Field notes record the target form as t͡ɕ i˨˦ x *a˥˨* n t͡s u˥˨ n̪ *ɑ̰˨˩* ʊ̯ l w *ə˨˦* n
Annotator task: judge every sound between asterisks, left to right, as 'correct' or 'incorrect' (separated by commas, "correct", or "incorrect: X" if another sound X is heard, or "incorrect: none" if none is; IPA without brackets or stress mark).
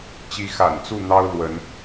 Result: incorrect: a̰˨˩, incorrect: ɑ˦, correct